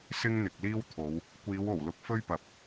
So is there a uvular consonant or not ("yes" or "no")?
no